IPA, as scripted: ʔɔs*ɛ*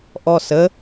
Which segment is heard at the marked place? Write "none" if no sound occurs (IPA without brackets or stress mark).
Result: ə